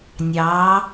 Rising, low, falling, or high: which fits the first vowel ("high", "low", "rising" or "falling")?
rising